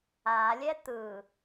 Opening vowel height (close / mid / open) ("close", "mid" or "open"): open